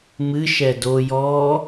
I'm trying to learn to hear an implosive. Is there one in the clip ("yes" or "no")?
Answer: no